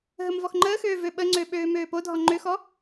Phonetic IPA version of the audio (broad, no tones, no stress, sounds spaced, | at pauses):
ɦ ə m v ɔ x ŋ͡ǃ əː x øː v ø ɓ ə ŋ͡ǀ ø ɓ øː m øː p o dʱ ɔ ŋ͡ǃ ø x ɔ